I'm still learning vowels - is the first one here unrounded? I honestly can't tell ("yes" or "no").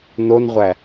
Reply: no